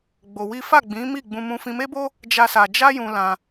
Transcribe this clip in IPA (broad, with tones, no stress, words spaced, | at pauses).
ɡ͡bo˧wi˦ fa˦˨ɡ͡bĩ˨˦mi˦˨ ɡ͡bũ˧ mũ˧fĩ˧me˦bo˦ | d͡ʒa˦sa˧ d͡ʒa˦jũ˧ lã˧